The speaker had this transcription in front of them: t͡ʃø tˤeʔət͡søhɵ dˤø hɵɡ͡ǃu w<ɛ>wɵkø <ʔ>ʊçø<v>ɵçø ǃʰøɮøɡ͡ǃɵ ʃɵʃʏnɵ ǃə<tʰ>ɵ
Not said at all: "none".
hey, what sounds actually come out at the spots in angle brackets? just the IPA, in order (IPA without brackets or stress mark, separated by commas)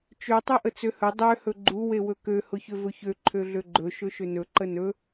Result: e, h, v, n